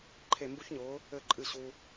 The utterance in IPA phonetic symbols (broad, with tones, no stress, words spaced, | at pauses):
ǃʰe˧˩mbu˦˥çɲʊː˨˥ | ɘ˧˩ǃʼɨ˧˩ ɕu˧